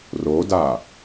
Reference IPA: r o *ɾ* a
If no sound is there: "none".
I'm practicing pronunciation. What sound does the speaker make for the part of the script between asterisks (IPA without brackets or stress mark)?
d